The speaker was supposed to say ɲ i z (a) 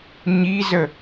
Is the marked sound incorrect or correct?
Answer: incorrect